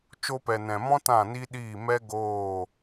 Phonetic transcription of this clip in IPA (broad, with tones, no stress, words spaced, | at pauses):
t͡ʃo˧pɛ˨ nɛ̃˨mɔ̃˦ tã˦˨ni˦ɗiː˦˨ mɛ˦ ɡoː˦˨